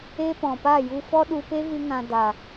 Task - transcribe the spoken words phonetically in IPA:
e˦ p ɔ̃˨ p a˦˨ j u˧ f ɔ˦ ɗ u˧ p e˦ v ɨ˦ ŋ ã˧ d a˨

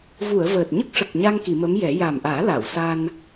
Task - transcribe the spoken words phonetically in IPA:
v u˨˩˨ ə̯ v əː˨˩ t̚ ɲ ə˦˥ k̚ ʂ ə˨˩ k̚ ɲ a˧ ŋ k i˨˩˨ m ə˧˥ m j ɛ˨˩˦ j a˨˩ m ʔ aː˨˩˦ l a˨˩˨ w s a˧ n

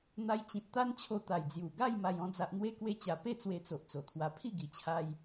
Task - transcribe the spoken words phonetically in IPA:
n̪ a˧ j t͡ɕ ĩ˨ t̚ t̪ a˦ n t͡ɕʰ o˧ t̪ a˨˩ j d͡z j u˨˩ ɡ a˥˧ j m a˧ j ɔ̃˦ d͡z a˦ ʔ n̪ w e˦ k w e˦ t͡ɕ a˧ p e˥˧ t͡s w e˧ t͡s o˨ ʔ t͡s o˨˩ t̪ʰ w a˧ pʰ i˥˧ ɡ i˧ t͡ɕʰ a˦ j

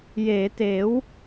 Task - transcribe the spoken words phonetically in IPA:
j eː˩˦ t eː˩˦ w

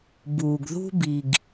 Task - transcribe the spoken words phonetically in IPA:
b uː˩ ɡ ð ṳ˧ b i˩ ɡ

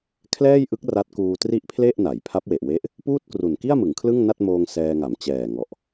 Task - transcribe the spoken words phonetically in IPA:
kʰ l ɛː˥˩ j ʔ ɯ˦˥ k̚ r a˦˥ t̚ k uː˧ t r i˥˩ ʔ pʰ l e˥˩ ʔ n a˩˦ j pʰ a˦˥ p̚ w e˨˩ ʔ w e˦˥ ʔ | p uː˥˩ t̚ k r u˨˩ n k i˥˩ a̯ m ɯ˩˦ ŋ kʰ l ɯ˥˩ ŋ n a˥˩ t̚ m oː˧ ŋ s ɛː˧ ŋ a˩˦ m t͡ɕ ɛː˨˩ ŋ ɔ˨˩ ʔ

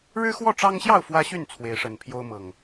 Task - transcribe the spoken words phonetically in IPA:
ɻ ɻ̩˦ x w ɔ˥˨ ʈ͡ʂ ɑ˦ ŋ ɕ j ɑ˥˨ ʊ̯ f w ä˦ ɕ y˥˨ n t͡sʰ w e˨˦ ɪ̯ ʂ ə˨˩ n pʰ j o˦ ʊ̯ m ɤ˨˩ ŋ

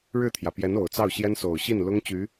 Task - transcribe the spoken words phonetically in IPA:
ɻ ɻ̩˥˩ t̪ʰ j ä˩ p j ɛ˧˥ n o˨˩ ʊ̯ t͡s ɑ˥˩ ʊ̯ ɕ j ɛ˥ n s o˨˩ ʊ̯ ɕ i˥˩ n l ʊ˥ ŋ t͡ɕ y˧˥

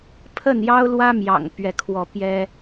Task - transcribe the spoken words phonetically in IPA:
pʰ ə˥˨ n j ɑ˦ ʊ̯ l w ä˦ m j ɑ̰˨˩ ŋ p ɥ ɛ˥˨ kʰ w ɔ˥˨ p j ɛ˦

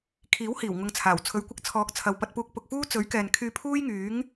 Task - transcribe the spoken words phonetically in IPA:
kʰ iː˨˥ w h iː˨˩ w ŋ ʊ˧ ŋ t͡sʰ aː˨˩ w t͡sʰ ɵ˨˧ ɥ kʷ ɪ˧ k̚ t͡sʰ ɔː˨˥ k̚ t͡sʰ ɐ˨ w p ɐ˧ t̚ p uː˧ k̚ p ʊ˨ k̚ f uː˥ t͡s ɵ˨˥ ɥ k ɛː˨ n kʰ yː˧ pʰ uː˥ j ŋ yː˨˥ ŋ

